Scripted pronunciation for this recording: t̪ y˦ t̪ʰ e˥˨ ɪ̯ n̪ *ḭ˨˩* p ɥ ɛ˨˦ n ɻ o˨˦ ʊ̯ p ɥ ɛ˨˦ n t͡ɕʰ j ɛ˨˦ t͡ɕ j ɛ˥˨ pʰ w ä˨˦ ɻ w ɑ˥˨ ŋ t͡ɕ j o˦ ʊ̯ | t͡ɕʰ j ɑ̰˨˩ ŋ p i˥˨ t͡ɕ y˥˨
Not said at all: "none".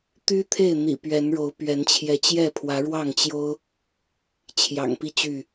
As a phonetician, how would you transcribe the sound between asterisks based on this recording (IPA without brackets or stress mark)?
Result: ḭ˨˩